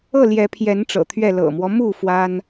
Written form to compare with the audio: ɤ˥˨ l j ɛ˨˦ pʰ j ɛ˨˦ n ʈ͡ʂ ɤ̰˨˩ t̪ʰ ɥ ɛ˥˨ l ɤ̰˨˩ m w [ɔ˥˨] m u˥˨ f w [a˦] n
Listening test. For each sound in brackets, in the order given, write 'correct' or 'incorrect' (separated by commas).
incorrect, correct